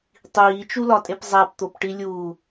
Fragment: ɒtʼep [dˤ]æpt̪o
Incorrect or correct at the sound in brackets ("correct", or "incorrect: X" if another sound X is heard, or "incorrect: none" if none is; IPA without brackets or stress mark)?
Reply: incorrect: zˤ